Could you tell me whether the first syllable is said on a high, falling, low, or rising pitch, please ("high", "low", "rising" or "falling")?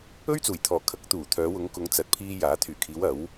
high